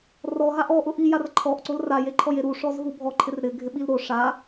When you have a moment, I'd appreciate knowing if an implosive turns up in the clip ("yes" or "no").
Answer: yes